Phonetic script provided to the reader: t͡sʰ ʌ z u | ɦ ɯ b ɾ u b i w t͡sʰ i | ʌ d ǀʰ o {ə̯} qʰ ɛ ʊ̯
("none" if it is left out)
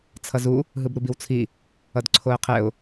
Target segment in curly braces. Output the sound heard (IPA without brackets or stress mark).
ə̯